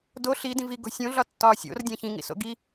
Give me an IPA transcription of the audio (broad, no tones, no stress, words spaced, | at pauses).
do ɬidĩv iɡo̤ sʲõ ɮɒtːɒːsʲo̰r dʲæ̃çĩŋḭso̰ ɡi